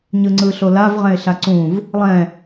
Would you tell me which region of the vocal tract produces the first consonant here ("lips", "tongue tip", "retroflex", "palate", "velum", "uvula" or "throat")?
palate